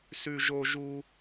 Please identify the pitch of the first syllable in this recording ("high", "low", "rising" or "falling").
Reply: high